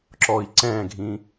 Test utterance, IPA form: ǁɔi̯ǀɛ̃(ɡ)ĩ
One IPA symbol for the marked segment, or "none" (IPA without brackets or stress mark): ɡʱ